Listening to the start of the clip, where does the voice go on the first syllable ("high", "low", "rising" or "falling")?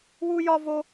high